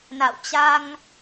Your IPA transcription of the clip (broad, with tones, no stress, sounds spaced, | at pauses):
n a̰˧˨ w t͡ɕ a˧ ŋ